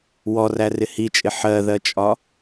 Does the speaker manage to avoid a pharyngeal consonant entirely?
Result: no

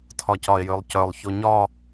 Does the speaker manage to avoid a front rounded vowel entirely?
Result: no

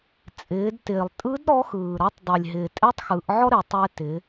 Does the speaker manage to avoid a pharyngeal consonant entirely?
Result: no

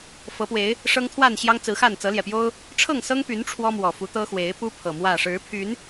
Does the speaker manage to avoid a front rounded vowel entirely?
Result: no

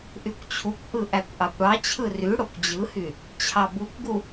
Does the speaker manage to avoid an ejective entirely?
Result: yes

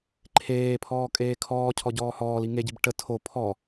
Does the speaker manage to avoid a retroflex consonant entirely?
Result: no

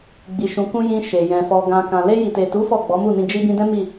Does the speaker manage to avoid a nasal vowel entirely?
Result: no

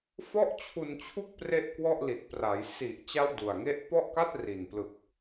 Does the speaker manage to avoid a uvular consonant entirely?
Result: yes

